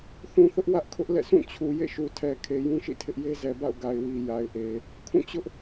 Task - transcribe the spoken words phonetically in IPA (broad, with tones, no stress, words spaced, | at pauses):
θũ˨θʊ˦ʔ wä˦ʔkʰʊ˦ʔ lɛ̰˦˨sʰũ˦˨ t͡ɕʰu˨ jḛ˦˨ʃu˨tʰɛ˨ kʰe˨jũ˦ʃḭ˦˨tʰɪ˦ʔ je˦zɛ˨ba̰˦˨ʊ̯ ɡa˨ɪ̯wi˨ ja˨ɪ̯ʔe˨ | kʰũ˦˨t͡ɕʊ˦ʔ